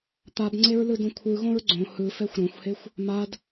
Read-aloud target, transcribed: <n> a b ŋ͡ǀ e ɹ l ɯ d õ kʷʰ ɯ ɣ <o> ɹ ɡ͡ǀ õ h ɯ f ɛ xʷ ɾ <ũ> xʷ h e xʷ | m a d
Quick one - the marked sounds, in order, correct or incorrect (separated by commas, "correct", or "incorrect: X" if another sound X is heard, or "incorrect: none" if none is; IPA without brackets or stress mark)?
incorrect: t̪, incorrect: õ, incorrect: õ